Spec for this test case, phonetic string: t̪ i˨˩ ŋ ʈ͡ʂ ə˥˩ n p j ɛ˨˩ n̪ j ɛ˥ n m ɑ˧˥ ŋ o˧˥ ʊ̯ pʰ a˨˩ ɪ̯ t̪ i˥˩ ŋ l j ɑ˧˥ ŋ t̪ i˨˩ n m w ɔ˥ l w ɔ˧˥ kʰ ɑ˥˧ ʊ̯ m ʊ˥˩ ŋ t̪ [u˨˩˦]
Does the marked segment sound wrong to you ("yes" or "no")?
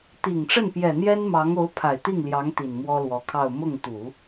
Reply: no